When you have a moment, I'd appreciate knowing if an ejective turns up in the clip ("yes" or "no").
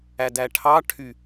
no